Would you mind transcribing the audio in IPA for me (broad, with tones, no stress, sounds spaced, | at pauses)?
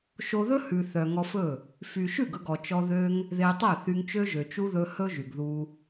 ʃ o˧ ð ɵ˦ h ʉ˨ θ œ˨ ŋ ɔ˧ f ɵ˦˨ | f y˨ ʃ ʉ˦˨ ɡ ɵ˧ ɡ ɔ˨ t͡ʃ ɔ˧ ð ø˦ ŋ | ð e˧ tˤ œ˦˨ θ y˧ ŋ t͡ʃ ø˦ ʒ ø˨ t͡ʃ u˦ ð ɵ˧ h ɵ˦ ʒ y˨ ɡ ð u˧